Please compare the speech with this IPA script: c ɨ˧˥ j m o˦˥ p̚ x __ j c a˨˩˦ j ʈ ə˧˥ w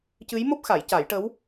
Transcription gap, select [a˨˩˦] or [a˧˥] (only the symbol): a˨˩˦